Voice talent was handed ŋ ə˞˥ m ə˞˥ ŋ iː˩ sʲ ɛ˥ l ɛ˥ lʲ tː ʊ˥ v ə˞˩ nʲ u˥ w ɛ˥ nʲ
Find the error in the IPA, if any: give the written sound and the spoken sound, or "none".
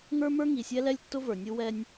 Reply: iː˩ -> i˩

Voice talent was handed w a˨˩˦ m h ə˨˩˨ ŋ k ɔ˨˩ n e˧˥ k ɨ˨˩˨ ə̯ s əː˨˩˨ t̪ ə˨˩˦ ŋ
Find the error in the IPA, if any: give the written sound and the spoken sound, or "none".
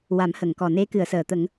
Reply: none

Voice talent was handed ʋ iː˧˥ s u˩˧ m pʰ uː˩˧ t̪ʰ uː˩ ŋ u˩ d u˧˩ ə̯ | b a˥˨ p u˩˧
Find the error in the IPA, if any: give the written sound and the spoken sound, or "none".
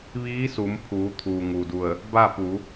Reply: none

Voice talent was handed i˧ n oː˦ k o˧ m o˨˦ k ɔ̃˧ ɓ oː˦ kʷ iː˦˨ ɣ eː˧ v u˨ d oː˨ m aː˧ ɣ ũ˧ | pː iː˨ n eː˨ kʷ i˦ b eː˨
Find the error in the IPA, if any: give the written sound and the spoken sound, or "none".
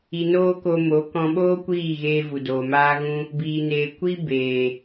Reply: pː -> b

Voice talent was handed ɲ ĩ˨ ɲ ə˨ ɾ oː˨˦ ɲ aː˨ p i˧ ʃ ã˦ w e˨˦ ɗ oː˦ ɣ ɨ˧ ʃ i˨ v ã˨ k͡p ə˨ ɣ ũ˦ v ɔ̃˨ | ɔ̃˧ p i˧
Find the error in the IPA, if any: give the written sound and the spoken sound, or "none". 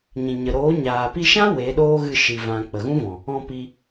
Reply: none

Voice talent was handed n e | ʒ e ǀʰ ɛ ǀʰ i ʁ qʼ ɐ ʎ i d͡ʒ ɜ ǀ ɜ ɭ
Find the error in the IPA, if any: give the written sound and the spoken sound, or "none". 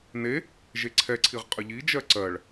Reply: ɐ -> ə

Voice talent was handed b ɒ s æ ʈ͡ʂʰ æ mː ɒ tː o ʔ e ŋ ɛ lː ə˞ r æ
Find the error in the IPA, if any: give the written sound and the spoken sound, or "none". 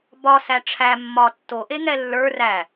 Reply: none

